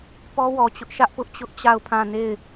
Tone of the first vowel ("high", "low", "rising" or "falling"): high